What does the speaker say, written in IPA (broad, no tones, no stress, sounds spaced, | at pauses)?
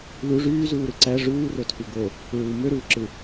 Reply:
l u ʐ yː z uː ɾ ɯ ǀ æ ʐ uː r o tʰ y ɡ o | ɹ u m ø ɾ uː ǁ ɯ